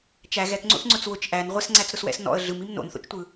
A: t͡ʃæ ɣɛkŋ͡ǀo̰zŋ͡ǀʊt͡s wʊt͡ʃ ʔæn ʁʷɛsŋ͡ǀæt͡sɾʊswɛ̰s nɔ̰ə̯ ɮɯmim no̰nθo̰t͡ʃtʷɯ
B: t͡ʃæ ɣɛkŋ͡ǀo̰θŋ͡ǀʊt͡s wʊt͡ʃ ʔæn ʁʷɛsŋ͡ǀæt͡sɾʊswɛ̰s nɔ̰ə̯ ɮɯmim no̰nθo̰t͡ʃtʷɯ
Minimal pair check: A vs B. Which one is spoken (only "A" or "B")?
B